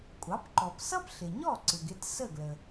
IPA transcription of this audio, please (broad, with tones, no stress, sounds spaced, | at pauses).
kʷʼ ɑ˩˥ p ǃ ɔ˩ p s ʌ˥ p ɬ ɪ˩ ɲ ɔ˥˩ ǀ ɪ˩ ɡ ɪ˥˩ t s ə˥˩ ɡ l ə˩